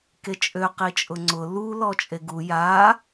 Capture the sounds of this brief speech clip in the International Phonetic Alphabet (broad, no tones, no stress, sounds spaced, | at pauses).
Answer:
k e t͡ʃʼ ø q i t͡ʃʼ ʊ ŋ͡ǀ ʊ l u l ɔ t͡ʃʼ e ɡ u j a